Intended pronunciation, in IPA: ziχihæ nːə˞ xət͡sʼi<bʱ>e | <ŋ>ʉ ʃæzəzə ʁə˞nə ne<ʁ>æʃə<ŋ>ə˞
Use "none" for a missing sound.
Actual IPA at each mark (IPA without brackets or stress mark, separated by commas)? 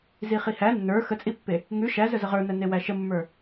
pː, ŋ, w, mː